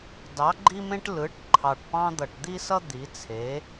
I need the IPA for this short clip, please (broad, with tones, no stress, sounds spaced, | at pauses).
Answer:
d ɑ˩˥ ɡ͡ǃ i˦ m ẽ˦ ʈ l ɯ˩˥ ʈ ǃʰ ɑ˨˩ ʈ p ɑ̃˦ d̪ ʌ˨˩ ʈ d̪ i˦ s ʌ˦ d̪ i˩˥ t͡sʰ e˩˥